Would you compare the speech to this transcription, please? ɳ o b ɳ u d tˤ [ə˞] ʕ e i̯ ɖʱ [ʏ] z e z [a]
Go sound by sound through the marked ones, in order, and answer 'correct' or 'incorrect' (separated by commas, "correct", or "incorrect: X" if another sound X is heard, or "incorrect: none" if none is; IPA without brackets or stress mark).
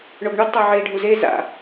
incorrect: ɤ, incorrect: u, incorrect: a̰